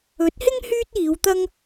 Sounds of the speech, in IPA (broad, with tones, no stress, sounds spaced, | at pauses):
ɵ˨˥ t̚ h ɪ˥ ŋ h yː˥ t̚ iː˨˧ w t̪ ɐ˥ ŋ